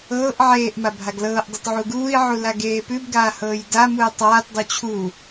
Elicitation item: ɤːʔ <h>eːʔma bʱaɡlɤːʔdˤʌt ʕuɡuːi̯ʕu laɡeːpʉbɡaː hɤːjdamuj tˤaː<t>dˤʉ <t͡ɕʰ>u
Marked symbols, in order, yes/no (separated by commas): no, yes, yes